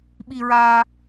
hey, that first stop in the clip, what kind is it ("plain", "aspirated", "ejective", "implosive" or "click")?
implosive